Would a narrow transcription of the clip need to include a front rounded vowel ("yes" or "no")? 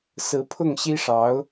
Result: no